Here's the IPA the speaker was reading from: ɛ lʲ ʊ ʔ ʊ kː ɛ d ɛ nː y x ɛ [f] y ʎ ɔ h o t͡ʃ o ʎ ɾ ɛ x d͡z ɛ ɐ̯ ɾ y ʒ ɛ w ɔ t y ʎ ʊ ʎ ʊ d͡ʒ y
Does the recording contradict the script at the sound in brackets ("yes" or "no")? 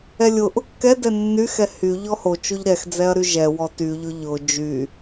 yes